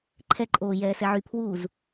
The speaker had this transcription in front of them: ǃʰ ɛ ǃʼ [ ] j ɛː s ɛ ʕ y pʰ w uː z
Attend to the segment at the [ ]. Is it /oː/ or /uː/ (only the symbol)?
oː